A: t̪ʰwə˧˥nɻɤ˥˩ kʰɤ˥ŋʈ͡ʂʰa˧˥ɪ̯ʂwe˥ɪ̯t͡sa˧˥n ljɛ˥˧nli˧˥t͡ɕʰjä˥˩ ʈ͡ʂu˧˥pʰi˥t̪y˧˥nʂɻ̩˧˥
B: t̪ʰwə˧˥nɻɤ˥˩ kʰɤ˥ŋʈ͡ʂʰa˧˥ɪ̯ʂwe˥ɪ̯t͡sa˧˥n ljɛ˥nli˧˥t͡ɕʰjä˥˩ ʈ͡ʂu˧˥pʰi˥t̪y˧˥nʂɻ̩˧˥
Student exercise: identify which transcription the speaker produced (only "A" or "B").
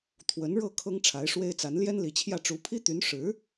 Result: B